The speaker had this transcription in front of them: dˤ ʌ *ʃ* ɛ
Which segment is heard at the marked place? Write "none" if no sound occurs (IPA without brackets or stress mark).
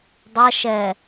ʃ